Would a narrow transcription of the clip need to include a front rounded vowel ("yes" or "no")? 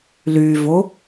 yes